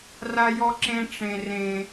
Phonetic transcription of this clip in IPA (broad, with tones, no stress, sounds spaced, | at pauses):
r a˦ j ɔ˦ ǁ ẽ˦ ʈ͡ʂ ẽ˦ r ẽ˦